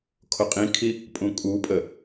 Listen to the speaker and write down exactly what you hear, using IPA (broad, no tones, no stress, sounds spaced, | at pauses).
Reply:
kʰ o qʼ ĩ kʰ i | pʼ ũ kʼ u pʼ ə